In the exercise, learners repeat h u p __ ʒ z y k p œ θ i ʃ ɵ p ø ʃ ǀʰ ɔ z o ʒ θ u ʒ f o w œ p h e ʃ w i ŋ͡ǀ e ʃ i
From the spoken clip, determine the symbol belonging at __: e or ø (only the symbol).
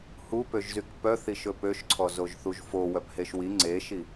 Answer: ø